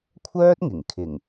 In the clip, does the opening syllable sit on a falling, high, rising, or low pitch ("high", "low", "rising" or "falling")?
high